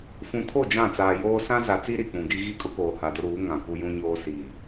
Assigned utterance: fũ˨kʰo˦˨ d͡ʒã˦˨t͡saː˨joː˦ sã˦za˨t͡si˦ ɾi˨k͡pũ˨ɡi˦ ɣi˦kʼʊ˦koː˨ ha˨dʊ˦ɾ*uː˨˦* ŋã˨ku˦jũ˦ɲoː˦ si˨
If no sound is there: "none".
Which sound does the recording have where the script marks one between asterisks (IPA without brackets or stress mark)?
uː˨˦